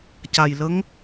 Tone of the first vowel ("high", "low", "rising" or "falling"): low